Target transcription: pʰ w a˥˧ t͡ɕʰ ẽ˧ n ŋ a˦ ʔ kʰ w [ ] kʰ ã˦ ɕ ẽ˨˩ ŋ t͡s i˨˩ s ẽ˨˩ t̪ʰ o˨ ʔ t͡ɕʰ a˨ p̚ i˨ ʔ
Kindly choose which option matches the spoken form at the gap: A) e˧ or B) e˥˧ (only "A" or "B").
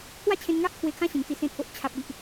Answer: A